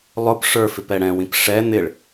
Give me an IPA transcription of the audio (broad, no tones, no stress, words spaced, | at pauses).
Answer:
lˠʊp ʂə˞fɪp ɛɽɛ̃wĩp ʂɛ n̪ɪɭ